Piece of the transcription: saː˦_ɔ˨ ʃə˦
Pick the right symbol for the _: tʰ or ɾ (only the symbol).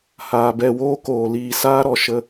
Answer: ɾ